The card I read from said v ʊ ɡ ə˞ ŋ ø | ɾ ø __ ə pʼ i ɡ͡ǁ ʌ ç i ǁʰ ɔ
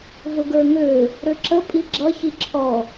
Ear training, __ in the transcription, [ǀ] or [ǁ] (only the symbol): ǁ